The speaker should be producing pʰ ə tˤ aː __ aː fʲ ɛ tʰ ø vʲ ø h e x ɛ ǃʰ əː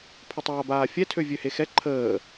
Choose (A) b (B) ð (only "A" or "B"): A